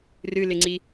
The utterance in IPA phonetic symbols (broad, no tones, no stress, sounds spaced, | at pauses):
r ɨ l ɪ ŋ͡ǀ i